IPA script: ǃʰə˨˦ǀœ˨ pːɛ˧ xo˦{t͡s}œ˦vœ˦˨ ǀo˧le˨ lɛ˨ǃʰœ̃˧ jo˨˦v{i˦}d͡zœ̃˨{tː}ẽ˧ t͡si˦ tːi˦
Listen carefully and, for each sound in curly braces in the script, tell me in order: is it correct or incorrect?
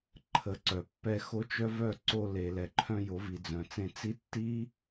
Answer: incorrect: t͡ʃ, incorrect: i˨, incorrect: t͡s

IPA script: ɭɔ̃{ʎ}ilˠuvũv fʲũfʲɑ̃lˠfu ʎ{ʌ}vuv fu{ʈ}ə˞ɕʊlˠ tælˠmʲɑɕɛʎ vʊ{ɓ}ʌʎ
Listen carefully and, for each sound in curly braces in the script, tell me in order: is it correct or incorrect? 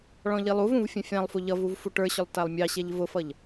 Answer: correct, correct, correct, incorrect: f

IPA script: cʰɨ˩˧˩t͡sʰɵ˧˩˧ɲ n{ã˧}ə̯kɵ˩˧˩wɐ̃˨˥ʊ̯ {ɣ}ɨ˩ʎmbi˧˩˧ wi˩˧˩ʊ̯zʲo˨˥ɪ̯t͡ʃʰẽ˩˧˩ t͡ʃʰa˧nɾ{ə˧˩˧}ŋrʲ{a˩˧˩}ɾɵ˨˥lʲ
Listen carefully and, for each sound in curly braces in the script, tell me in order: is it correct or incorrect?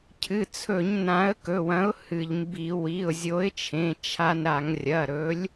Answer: incorrect: ã˨˥, incorrect: h, incorrect: a˧˩˧, incorrect: ɐ˩˧˩

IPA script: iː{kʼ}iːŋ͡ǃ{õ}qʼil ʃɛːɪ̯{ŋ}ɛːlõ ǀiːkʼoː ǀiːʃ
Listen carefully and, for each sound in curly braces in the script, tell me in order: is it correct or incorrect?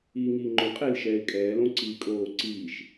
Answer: incorrect: ŋ, correct, incorrect: kʼ

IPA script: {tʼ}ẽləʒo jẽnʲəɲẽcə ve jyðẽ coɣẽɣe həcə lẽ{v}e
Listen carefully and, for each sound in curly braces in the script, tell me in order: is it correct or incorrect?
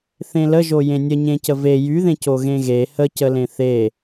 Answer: incorrect: θ, incorrect: θ

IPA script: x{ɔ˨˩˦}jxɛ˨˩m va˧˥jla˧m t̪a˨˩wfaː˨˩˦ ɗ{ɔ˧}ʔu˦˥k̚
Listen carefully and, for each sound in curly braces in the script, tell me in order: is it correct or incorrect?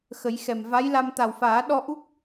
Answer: incorrect: ə˨˩˦, correct

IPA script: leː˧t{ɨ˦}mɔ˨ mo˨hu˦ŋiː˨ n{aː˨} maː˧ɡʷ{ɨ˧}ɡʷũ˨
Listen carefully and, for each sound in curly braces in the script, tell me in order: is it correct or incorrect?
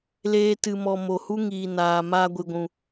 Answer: incorrect: ɨ˨, correct, incorrect: ɨ˨

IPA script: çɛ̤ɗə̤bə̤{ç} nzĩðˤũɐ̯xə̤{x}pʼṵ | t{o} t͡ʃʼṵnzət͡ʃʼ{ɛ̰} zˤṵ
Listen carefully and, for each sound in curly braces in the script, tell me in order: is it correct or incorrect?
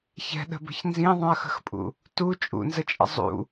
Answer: correct, correct, incorrect: u, incorrect: ə̰

